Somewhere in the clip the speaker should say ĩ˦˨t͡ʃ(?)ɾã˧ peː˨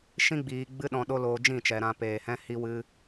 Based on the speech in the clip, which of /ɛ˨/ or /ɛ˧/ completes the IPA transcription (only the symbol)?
ɛ˨